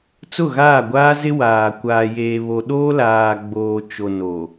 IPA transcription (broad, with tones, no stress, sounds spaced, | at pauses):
t͡s ʊ˦˨ ɣ aː˦˨ ɡʷ aː˦ z ɪ˦ w aː˨ kʷ aː˨ j eː˨ β o˨ ɗ oː˦ l aː˨ ɡ͡b oː˨ t͡ʃ o˨ n o˨